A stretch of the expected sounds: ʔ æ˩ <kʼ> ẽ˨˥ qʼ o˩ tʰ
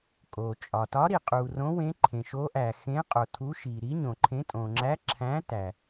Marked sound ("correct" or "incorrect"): incorrect